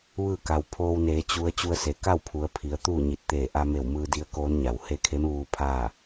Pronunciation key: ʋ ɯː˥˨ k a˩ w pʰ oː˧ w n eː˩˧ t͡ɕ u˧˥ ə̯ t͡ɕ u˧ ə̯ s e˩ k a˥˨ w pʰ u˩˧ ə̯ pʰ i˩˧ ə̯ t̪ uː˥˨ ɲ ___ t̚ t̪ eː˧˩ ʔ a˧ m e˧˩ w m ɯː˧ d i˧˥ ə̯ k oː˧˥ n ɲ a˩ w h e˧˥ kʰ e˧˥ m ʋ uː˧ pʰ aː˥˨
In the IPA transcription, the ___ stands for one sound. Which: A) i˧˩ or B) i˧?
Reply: A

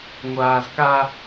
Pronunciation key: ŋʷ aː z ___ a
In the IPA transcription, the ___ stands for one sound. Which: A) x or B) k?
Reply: B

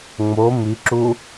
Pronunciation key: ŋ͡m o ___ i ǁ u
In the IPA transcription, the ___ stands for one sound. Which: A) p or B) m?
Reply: B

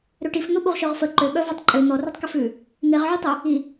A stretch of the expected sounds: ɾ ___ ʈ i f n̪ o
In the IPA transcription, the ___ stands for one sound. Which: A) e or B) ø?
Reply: B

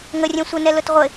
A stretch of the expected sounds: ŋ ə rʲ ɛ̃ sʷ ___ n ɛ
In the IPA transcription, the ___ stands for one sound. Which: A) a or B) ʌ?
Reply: B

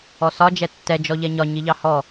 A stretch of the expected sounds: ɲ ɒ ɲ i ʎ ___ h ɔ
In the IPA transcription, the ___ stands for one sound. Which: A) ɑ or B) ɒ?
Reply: A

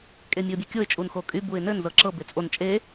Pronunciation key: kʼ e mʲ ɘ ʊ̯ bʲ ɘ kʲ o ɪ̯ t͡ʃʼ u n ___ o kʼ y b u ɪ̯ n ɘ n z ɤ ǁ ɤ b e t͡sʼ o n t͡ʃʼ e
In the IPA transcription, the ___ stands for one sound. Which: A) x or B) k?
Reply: A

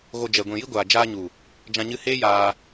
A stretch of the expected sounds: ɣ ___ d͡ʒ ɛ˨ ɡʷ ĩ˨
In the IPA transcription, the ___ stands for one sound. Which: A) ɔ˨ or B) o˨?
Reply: B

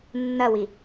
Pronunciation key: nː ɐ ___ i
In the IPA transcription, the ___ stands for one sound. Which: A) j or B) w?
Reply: B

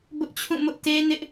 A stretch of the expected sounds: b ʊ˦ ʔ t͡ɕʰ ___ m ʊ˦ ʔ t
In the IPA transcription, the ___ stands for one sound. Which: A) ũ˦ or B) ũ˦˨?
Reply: B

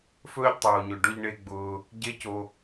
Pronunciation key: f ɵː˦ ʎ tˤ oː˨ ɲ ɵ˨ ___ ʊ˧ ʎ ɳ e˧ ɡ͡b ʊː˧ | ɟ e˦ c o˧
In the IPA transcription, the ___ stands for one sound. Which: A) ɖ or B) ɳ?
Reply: A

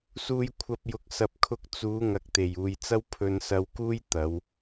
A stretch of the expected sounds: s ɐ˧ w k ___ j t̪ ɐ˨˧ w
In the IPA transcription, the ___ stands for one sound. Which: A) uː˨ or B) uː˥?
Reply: B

